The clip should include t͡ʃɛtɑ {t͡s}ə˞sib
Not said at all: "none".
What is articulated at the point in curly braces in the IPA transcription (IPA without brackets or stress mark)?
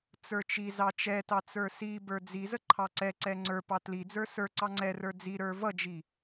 t͡s